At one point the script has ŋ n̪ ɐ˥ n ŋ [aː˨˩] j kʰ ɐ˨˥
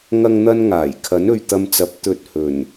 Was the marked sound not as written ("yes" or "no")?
no